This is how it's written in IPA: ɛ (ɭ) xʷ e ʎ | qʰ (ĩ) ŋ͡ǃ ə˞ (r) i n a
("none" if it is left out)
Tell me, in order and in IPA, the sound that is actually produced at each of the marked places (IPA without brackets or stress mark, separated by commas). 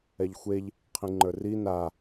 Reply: ʎ, ĩ, r